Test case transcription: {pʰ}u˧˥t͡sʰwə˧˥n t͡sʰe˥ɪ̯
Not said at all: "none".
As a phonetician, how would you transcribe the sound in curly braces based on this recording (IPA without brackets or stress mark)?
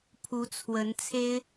pʰ